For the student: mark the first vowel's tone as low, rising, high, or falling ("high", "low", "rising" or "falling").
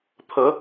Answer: rising